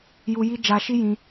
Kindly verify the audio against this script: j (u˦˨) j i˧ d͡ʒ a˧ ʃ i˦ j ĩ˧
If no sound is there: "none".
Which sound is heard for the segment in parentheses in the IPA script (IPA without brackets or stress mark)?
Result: u˧